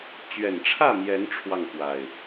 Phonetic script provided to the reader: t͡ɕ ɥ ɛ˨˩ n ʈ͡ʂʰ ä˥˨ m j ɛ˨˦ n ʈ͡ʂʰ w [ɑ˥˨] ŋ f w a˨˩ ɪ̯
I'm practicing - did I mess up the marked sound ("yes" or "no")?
no